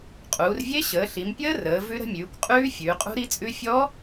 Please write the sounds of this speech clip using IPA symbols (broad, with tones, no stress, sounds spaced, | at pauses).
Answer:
qʼ uː˩˧ r vʲ e˦˥ ɕ əː˩˧ ɬ i˩˧ m pʲ əː˦˥ r əː˩˧ v ʉ˦˥ ɾ ə̤˦˥ mʲ ʉː˩˧ kʷ qʼ ʉː˦˥ fʲ ʉː˩˧ qʼ ṳ˦˥ ɾ i˦˥ t͡sʼ ʉ˦˥ fʲ ɔ˦˥